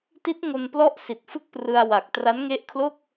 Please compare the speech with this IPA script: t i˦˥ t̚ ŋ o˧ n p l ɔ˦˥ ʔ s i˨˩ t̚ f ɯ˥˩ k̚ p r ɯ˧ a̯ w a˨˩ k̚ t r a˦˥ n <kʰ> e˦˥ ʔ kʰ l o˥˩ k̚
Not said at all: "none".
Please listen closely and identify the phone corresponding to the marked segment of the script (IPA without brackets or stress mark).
ŋ